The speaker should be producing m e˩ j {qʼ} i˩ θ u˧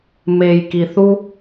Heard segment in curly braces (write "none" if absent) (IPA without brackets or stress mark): k